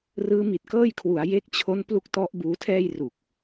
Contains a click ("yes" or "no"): no